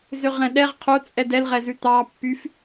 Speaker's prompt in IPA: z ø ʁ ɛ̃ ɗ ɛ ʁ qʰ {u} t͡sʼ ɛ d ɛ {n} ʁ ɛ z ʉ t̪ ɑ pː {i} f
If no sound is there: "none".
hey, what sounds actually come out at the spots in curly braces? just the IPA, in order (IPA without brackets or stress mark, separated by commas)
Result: o, l, y